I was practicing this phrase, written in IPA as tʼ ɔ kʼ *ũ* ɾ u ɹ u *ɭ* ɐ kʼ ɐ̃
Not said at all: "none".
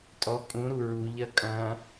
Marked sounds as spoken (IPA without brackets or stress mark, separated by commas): ũ, ʎ